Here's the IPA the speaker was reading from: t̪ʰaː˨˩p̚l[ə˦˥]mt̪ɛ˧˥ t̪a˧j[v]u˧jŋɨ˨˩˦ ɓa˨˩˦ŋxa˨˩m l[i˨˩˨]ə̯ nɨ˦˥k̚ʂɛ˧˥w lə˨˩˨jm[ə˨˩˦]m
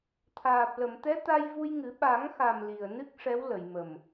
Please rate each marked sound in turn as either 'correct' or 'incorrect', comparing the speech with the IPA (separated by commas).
incorrect, correct, incorrect, incorrect